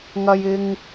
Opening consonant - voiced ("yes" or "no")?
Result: yes